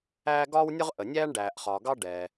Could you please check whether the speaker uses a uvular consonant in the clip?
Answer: yes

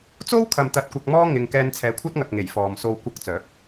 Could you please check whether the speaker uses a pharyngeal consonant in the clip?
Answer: no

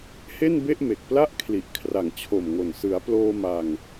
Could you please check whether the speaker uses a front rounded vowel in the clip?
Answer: no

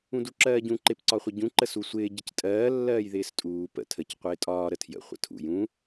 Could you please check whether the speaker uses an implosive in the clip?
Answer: no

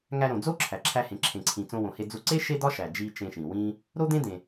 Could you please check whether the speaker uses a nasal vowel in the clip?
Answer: yes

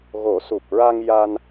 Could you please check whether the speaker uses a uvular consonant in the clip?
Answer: no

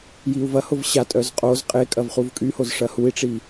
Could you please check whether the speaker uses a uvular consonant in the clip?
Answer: yes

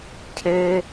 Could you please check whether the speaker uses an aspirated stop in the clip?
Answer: yes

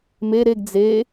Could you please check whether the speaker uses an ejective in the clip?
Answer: no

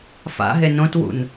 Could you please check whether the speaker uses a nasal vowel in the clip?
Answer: yes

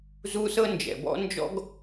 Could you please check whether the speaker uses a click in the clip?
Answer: no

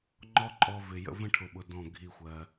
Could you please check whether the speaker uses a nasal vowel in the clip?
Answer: yes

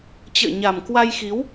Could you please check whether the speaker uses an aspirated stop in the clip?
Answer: no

